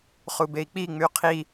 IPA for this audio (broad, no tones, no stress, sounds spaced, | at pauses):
χ u b e i̯ k͡p i ŋ͡m y qʰ i